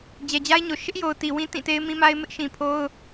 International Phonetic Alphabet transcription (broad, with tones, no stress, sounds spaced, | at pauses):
d͡ʑ ɛ˨ d͡ʑ a˦ ɪ̯ ɲ o˨ ʃ ɪ˦ ʔ j o˨ ʊ̯ t i˨ w ĩ˦ t ĩ˦˨ t e˦ ɪ̯ m ĩ˦ m a˦ ɪ̯ m ɪ˦ ʔ ʃ ĩ˨ pʰ o˦ ʊ̯